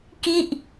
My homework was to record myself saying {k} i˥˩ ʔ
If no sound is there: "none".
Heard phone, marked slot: k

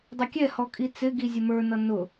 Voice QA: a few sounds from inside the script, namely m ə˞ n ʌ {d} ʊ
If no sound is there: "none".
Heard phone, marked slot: n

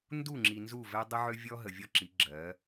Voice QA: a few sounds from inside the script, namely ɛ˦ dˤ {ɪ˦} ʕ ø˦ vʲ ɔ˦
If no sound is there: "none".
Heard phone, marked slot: ə˦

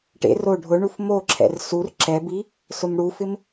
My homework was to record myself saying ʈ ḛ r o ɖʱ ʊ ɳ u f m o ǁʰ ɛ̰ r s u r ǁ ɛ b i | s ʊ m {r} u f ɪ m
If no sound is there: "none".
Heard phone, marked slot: ɽ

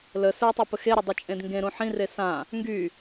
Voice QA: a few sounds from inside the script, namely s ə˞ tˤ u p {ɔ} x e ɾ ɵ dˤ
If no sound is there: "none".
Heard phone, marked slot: ə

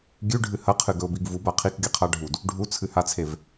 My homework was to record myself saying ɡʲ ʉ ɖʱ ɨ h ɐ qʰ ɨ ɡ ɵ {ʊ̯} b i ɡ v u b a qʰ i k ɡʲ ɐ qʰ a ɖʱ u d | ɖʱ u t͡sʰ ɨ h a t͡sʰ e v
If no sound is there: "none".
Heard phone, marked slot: ʊ̯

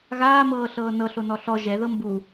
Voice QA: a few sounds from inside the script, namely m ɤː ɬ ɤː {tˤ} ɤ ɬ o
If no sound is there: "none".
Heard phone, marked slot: n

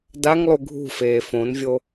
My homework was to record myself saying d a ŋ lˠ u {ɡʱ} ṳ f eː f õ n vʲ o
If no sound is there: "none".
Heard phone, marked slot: ɡʱ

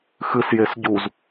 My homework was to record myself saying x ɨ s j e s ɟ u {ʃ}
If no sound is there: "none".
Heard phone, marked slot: z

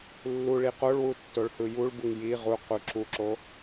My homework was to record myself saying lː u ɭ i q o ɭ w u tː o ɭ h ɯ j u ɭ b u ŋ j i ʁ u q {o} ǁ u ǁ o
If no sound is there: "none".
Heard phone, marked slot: u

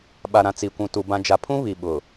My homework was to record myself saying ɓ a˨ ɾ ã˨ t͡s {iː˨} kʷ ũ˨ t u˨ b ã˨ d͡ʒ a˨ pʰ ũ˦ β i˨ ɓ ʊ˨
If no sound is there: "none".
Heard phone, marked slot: i˨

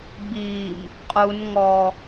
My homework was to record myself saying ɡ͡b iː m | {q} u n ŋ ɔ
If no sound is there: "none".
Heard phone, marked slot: qʼ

